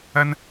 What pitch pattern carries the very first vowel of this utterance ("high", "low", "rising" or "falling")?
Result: high